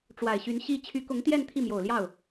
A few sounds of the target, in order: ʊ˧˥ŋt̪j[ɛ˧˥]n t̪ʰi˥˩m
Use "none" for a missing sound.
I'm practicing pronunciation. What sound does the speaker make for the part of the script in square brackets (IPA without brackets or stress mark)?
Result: ɛ˥˧